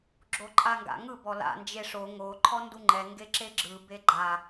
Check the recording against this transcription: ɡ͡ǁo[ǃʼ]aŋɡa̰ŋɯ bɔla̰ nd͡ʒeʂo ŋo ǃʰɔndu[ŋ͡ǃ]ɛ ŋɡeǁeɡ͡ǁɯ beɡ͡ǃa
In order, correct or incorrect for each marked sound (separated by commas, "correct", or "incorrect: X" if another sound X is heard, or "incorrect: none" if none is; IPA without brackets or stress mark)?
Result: correct, correct